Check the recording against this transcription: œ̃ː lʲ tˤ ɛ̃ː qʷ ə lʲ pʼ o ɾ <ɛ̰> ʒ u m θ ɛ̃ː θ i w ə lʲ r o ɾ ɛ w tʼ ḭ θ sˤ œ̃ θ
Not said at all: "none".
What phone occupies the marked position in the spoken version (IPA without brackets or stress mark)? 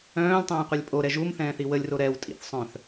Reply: ɛ